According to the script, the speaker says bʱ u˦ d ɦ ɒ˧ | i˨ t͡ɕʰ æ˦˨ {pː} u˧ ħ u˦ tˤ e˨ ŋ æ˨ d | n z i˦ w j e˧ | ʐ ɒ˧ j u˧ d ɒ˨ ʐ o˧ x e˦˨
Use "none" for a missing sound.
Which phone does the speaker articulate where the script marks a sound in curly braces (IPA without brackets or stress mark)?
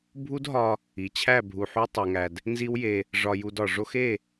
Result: bʱ